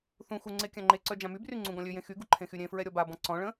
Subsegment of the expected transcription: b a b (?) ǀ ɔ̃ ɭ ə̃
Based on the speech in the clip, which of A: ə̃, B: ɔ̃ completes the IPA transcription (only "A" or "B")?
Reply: B